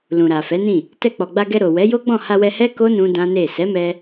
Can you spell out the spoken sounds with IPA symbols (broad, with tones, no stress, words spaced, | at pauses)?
lũ˨ɾa˨fɛ˨˦nĩ˦˨ | tɛ˧k͡pɔ˨ɡ͡ba˧ɡɛ˧ ɾo˨ wɛ˨˦jo˦ɡ͡bɔ̃˦˨ ha˧wɛ˧hɛ˦ ko˦ nũ˦dã˦ne˦˨ sɛ˨˦mɛ˧